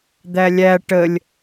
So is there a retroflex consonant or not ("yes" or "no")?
yes